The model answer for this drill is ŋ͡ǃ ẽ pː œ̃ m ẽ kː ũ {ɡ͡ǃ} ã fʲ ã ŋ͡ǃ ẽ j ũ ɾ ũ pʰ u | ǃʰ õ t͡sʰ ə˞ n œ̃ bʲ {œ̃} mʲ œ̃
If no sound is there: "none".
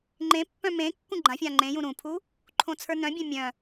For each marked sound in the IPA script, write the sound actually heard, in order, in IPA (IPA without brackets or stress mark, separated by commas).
ɡ͡ǃ, œ̃